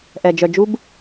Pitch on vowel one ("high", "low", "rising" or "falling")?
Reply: low